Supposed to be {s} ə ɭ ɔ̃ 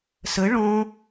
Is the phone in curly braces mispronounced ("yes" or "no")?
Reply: no